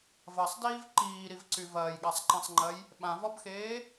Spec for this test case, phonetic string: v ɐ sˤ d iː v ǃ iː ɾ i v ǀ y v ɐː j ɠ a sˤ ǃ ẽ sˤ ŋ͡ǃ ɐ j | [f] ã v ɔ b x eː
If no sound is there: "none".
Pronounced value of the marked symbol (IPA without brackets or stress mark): ɓ